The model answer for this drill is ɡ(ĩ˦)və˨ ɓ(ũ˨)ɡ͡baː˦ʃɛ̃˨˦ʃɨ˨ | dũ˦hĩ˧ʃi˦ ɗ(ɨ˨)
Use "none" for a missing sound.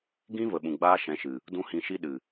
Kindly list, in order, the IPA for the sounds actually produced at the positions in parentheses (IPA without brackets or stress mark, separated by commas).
ĩ˦, ũ˨, ɨ˨